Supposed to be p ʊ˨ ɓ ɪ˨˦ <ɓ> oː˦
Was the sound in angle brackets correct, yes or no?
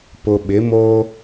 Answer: no